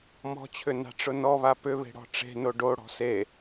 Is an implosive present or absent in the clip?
absent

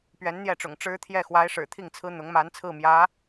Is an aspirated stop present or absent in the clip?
present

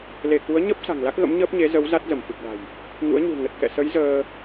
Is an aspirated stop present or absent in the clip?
absent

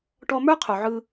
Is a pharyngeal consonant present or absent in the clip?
present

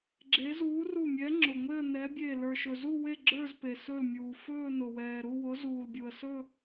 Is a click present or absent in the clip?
present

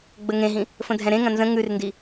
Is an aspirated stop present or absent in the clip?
absent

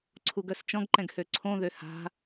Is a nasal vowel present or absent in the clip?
present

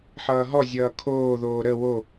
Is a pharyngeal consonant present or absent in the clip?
present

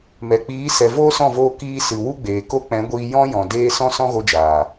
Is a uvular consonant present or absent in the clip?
absent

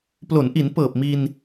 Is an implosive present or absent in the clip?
absent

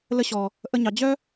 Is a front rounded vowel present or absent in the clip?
present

